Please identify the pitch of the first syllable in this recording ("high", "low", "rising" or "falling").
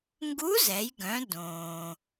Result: rising